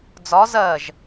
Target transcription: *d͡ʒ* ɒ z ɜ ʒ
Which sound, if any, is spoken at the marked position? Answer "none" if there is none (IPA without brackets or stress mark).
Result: d͡z